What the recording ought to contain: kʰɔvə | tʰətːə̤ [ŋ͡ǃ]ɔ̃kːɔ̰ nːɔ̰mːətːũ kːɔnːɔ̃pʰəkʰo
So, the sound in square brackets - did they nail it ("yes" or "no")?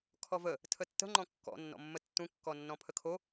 yes